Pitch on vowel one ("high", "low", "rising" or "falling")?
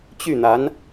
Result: falling